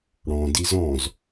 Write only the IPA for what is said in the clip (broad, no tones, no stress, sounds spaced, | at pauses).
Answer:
ɽ ɔ̃ d i z ɔ̃ z